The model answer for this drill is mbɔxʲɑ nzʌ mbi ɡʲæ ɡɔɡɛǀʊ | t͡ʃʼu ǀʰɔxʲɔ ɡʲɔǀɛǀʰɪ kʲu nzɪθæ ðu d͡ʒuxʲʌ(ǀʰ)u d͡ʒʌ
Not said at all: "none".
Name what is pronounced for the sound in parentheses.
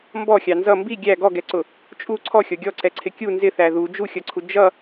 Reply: ǀʰ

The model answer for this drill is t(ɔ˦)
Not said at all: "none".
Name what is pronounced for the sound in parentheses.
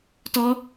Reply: ɔ˦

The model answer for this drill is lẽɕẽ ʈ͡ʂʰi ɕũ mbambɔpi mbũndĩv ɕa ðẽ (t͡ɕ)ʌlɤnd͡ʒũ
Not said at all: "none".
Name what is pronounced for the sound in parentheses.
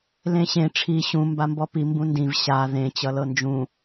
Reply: t͡ɕ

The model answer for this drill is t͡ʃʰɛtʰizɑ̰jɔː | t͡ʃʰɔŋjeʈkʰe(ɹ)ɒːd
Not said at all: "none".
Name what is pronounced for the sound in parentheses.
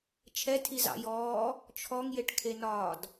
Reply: n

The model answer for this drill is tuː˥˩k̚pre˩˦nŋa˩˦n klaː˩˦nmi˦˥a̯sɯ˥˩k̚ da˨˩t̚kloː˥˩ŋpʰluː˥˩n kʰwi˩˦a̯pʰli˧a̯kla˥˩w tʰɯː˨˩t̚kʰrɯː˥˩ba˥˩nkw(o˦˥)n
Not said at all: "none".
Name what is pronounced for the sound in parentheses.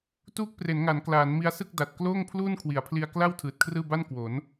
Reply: o˩˦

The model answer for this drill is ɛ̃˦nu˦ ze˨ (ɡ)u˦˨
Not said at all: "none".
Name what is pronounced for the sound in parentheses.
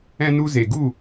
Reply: ɡ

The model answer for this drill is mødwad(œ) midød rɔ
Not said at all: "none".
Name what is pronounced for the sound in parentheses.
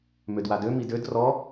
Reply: ø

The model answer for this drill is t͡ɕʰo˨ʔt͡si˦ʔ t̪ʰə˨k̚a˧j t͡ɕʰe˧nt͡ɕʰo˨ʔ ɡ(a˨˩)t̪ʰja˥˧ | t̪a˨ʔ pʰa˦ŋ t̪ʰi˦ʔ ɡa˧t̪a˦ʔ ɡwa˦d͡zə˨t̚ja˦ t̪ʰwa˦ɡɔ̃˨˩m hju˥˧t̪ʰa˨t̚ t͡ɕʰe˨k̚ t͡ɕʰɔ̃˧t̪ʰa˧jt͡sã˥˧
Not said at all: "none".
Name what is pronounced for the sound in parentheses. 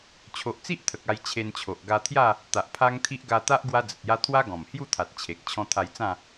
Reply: a˧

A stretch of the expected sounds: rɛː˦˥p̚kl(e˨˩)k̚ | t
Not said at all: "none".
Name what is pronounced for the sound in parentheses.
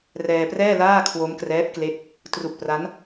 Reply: e˦˥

